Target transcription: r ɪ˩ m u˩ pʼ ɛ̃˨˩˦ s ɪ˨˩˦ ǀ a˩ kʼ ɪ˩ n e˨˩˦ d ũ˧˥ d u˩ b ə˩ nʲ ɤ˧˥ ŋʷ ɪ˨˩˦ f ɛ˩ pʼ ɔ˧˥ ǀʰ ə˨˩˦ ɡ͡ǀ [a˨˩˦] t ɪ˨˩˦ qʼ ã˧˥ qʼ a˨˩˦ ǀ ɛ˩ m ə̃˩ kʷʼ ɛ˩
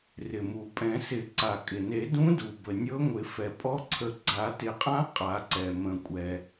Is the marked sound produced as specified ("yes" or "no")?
yes